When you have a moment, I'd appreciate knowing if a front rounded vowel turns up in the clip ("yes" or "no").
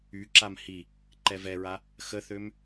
yes